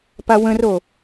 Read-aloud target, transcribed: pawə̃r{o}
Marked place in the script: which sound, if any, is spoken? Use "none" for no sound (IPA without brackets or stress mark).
o